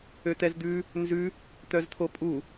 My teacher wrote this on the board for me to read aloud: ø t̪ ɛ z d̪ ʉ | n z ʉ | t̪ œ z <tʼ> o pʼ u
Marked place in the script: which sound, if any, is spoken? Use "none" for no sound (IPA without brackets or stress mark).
t̪ʰ